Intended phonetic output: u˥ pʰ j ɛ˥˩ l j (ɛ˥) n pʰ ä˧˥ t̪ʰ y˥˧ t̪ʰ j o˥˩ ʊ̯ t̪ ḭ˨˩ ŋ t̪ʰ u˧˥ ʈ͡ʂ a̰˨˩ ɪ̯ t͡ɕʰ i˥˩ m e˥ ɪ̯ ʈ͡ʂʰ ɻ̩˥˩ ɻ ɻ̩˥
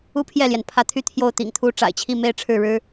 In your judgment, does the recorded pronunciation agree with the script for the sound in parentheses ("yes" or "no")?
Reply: no